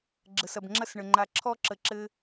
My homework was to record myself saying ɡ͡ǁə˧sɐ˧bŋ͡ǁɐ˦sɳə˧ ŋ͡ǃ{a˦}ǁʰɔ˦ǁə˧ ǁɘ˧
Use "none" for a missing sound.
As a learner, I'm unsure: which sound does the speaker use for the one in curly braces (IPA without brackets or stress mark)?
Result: a˧